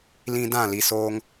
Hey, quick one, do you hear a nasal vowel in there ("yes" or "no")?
yes